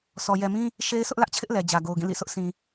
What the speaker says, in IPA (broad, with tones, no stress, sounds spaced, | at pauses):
s ɔ˨ j ɛ˨ m ĩ˦ | ʃ e˦ ɪ̯ s ʊ˦ ʔ l ä˦ ʔ t͡ɕʰ ɪ˦ ʔ l ɛ˨ d͡ʑ ä˨ ɡ o˨ ʊ̯ ɡ ĩ˦˨ l ḭ˦˨ s ʊ˦ ʔ s ĩ˨